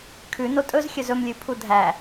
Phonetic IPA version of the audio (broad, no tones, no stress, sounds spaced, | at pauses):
kʰ ʉ n o tʼ ɵ z xʲ ɵ z ɵ m lʲ ʉ pʰ u dʱ æ